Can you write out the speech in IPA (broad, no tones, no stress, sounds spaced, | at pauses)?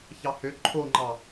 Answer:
ç ɑ h ø ǃʰ o ŋ͡ǃ ɑ